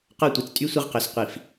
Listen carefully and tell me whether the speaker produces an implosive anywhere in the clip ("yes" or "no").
no